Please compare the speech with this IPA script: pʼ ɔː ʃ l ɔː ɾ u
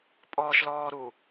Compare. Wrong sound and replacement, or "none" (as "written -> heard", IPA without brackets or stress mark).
none